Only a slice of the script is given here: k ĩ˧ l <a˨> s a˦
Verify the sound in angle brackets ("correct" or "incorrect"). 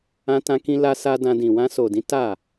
incorrect